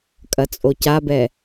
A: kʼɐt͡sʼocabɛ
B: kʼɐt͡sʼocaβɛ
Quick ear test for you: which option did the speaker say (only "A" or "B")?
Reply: A